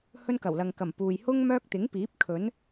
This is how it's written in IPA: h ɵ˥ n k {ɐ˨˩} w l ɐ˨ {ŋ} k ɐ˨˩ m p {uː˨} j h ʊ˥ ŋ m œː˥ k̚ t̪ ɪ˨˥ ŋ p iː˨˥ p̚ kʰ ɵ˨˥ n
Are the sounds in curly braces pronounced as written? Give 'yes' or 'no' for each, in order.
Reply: yes, yes, yes

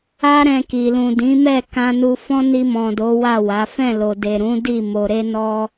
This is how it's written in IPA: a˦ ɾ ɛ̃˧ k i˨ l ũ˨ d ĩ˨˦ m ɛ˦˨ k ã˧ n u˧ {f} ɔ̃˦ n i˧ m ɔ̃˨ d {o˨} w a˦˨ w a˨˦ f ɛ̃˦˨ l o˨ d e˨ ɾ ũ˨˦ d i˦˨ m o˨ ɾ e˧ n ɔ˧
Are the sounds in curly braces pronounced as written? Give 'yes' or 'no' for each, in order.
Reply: yes, no

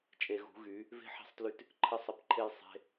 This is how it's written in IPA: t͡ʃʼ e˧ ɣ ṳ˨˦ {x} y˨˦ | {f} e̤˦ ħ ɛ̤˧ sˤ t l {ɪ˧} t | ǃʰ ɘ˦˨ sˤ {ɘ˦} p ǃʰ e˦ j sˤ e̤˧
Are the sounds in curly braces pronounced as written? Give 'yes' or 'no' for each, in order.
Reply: no, no, no, no

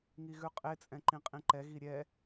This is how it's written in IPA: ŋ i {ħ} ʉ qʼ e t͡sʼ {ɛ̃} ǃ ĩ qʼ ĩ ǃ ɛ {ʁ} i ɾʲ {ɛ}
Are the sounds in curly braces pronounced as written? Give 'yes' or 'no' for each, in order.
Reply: no, yes, no, yes

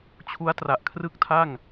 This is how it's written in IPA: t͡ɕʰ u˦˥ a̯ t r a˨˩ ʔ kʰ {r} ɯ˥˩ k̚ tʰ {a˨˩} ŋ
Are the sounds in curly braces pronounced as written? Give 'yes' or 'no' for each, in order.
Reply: yes, no

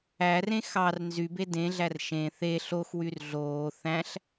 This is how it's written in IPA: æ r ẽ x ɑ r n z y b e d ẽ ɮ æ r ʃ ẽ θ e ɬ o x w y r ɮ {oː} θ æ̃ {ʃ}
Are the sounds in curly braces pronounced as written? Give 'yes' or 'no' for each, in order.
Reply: yes, no

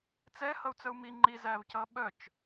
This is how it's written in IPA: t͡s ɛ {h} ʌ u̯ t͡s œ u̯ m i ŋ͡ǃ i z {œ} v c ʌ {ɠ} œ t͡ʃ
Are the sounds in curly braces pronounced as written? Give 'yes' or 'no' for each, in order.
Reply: yes, no, no

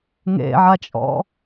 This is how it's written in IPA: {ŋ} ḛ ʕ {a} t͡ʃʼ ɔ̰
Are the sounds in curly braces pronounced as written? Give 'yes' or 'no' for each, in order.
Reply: yes, yes

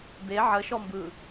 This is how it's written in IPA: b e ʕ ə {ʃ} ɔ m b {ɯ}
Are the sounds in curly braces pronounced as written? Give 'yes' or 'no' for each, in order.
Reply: yes, yes

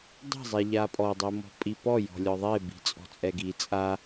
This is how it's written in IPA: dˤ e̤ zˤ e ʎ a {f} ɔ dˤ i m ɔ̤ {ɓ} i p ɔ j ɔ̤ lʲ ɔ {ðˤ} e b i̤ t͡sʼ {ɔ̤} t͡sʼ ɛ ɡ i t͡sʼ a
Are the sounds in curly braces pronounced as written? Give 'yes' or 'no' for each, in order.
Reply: no, no, yes, yes

